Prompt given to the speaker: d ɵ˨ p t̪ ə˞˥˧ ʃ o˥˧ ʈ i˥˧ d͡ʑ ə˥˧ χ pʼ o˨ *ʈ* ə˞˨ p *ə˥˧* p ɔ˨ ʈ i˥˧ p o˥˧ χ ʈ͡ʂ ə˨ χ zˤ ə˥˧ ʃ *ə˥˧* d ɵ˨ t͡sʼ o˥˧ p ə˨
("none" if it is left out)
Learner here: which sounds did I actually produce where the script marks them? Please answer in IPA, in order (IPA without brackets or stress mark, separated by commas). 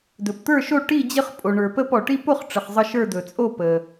ɳ, ə˥˧, ə˞˥˧